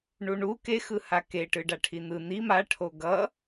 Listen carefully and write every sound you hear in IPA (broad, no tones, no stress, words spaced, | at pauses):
ɳuɳu kexɯ hakeʈɯ ɖaʈʰin̪ɯ n̪i maʈʰo ɡʌ